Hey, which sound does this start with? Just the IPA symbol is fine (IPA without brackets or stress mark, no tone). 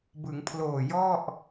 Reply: b